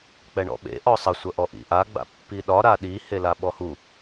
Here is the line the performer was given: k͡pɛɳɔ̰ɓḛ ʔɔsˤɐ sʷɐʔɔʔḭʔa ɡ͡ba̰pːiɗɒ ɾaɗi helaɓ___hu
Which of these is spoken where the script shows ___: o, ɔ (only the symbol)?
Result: ɔ